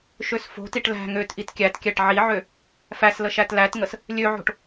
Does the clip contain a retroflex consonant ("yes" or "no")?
yes